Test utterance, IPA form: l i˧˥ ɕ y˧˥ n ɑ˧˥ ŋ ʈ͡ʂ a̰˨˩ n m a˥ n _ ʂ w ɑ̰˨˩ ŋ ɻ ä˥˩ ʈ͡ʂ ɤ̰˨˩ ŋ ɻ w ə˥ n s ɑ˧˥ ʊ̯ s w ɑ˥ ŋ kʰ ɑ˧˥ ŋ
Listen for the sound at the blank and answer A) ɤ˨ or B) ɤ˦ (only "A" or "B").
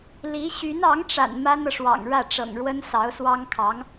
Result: A